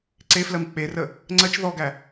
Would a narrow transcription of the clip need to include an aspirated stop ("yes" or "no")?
no